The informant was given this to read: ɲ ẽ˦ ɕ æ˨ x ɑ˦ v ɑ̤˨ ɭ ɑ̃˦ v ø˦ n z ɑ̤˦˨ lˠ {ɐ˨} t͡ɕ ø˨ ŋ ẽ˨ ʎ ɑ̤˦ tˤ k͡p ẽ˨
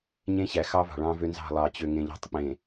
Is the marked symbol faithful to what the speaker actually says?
no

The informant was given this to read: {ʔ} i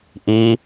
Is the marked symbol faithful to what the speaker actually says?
yes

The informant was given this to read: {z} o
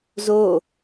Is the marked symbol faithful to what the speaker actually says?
yes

